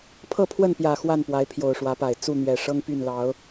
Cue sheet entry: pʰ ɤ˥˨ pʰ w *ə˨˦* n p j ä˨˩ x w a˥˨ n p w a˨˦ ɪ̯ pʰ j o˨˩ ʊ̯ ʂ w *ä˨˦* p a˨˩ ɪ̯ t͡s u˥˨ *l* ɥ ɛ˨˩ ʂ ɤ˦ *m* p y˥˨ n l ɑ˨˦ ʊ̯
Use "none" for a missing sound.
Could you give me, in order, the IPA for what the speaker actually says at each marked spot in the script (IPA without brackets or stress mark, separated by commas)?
ə˥˨, ä˨˦, n̪, ŋ